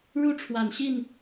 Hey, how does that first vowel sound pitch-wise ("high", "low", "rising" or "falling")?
high